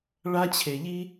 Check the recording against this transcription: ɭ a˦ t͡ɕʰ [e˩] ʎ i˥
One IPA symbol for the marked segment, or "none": e˩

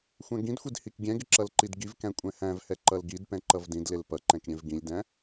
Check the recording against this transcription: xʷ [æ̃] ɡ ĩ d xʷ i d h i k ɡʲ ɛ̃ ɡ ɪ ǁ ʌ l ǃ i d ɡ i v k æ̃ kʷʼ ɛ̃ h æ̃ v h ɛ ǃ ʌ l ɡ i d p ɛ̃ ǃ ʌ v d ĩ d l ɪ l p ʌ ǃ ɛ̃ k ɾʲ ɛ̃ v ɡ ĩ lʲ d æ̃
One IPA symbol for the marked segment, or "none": æ̃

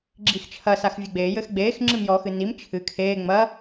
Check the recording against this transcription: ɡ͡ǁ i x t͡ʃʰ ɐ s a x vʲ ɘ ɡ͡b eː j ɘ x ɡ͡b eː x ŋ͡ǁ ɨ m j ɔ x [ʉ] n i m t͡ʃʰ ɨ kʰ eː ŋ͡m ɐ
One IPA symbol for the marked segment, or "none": ɨ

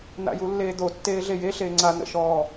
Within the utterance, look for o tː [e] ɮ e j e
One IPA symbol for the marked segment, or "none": eː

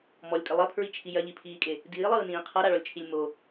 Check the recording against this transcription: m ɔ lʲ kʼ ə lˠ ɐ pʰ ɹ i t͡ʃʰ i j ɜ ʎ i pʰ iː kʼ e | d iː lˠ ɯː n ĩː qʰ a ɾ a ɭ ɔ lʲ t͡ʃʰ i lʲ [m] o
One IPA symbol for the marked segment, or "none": m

